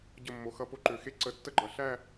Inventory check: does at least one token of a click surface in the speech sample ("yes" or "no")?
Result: yes